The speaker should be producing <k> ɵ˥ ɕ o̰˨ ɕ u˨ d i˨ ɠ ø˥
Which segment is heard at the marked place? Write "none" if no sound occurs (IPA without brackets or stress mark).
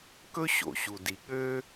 k